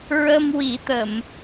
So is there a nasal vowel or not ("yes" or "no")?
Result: no